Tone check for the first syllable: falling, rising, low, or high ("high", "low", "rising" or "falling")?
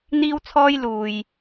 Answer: high